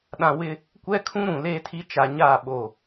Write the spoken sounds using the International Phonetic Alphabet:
ɗã˨ wɪ˦ | kʷɛ˦kʰũ˦ɾũ˨ leː˦tʰi˦ t͡ʃa˨ɲaː˦˨ ɓo˦˨

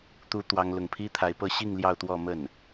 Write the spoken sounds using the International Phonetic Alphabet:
t̪u˧˥ t̪wɑ˥ŋlʊ˥˩ŋ pʰi˥t̪ʰa˧˥ɪ̯pɤ˥˧ ɕi˥˧ŋ ljɑ˥˧ʊ̯t̪wɔ˥˧ mə˥˩n

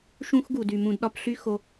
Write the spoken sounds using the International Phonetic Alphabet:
ʃũ˥x ɡu˩dy˩mũ˨d ɗɒ˦pɬy˦ xo˨

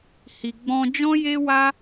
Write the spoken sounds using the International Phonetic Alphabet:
hi˨ɡ͡bɔ̃˧ d͡ʒɔ̃˦je˦wa˦

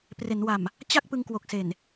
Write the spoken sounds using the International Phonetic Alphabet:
pre˩˦nwa˨˩m | t͡ɕa˥˩k̚ pɯ˧ŋkwo˨˩k̚ se˨˩n

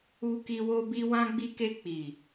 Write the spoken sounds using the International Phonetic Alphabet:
u˧ki˧ wo˧bi˧ wã˧ɡ͡bi˧ke˧ k͡pi˨

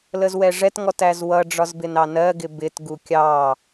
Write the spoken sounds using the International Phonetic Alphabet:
ləzwɛʐɛt ŋɔtæzwʌ ɖ͡ʐɒzbɪnɑnɜ ɡɪbɪt ɡukʲɑ

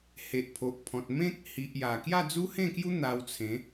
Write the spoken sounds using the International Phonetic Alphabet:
he˨ʔpʰo˨ʔpʰɔ̃˨t̚ mẽ˦k̚hi˨ʔ ja˨˩ kja˥˧d͡zu˦hẽ˥˧kju˦ n̪a˧wt͡sʰẽ˨˦

